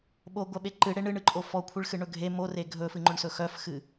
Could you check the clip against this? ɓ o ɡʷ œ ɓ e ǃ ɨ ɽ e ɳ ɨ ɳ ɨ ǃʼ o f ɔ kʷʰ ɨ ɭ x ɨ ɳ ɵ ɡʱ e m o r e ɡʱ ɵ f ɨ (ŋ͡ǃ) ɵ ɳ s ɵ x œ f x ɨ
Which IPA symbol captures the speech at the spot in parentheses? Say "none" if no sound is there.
ŋ͡ǃ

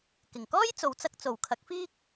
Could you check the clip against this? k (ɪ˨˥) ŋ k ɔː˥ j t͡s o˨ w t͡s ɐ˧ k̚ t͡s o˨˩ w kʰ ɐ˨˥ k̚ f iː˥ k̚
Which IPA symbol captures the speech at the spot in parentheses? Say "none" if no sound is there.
ɪ˨˩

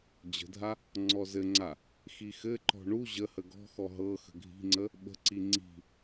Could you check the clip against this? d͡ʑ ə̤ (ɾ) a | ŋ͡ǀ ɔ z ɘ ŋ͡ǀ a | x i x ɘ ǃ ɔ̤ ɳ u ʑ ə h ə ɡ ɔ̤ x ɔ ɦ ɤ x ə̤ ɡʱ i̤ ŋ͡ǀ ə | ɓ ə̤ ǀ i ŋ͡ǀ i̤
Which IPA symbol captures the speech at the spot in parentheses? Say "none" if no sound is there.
dʱ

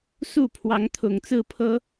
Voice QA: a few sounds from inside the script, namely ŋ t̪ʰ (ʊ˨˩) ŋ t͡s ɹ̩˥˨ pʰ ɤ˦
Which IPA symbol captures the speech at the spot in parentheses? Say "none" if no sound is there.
ʊ˨˩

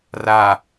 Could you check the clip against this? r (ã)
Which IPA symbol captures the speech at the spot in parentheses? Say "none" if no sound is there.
a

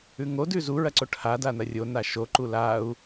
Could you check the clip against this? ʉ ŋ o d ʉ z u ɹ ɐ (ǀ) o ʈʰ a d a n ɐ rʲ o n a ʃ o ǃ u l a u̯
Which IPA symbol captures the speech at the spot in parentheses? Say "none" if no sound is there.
ǀ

